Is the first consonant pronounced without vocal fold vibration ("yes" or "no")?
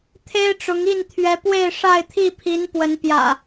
yes